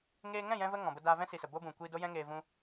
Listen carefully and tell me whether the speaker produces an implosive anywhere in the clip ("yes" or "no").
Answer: no